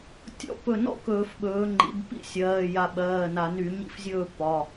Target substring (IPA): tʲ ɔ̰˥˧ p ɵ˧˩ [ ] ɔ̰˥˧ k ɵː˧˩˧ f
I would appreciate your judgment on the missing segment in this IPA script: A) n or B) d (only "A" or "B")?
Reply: A